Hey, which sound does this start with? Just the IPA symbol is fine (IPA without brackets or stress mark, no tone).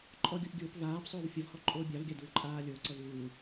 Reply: ǃʼ